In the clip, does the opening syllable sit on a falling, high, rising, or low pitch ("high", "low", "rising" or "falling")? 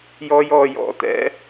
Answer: high